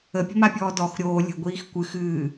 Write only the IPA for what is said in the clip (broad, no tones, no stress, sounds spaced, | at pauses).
ə pʲ ə̤ m a pʲ ɔː d ɔ x ɾʲ oː lʲ ə̤ ɡʷ iː x kʷ ɨ x ɨː